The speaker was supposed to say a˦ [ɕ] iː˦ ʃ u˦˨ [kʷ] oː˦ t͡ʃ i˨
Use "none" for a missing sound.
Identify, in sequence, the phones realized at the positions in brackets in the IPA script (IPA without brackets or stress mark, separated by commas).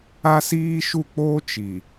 s, k͡p